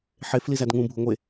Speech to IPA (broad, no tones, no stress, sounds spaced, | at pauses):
ħ e f l i z æ d ŋ ũ bʱ u ŋʷ e